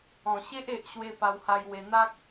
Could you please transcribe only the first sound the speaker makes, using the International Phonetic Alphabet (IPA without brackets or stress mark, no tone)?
ɔ̃